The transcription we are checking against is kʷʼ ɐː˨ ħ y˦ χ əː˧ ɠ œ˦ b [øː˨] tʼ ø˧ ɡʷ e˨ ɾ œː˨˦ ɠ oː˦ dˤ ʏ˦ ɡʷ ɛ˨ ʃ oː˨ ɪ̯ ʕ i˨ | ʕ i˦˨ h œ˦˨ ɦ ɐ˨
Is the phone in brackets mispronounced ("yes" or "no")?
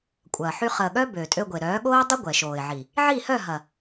no